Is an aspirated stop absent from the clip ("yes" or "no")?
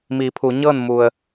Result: no